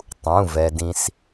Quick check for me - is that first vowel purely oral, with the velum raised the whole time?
no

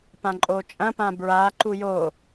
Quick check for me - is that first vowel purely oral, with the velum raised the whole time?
no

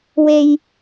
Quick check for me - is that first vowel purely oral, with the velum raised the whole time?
yes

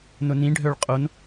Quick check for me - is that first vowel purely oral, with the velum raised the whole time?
yes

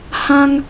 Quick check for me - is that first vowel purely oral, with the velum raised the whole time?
no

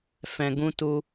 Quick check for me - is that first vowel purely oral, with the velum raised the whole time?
no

